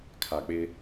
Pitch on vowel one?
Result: low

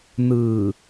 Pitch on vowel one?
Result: low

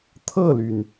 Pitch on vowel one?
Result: falling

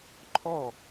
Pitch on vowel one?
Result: falling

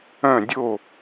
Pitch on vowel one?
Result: falling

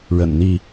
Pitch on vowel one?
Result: low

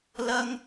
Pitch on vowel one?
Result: high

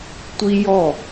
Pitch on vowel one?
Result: high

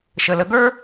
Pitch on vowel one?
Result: low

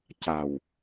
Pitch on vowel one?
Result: low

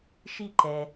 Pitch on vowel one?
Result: falling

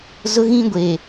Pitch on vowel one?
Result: high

